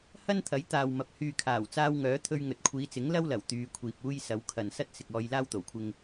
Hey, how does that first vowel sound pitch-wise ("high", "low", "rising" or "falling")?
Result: high